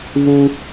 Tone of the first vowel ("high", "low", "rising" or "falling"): high